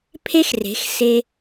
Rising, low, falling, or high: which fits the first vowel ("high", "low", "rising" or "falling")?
high